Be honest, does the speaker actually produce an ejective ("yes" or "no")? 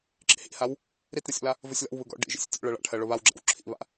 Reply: no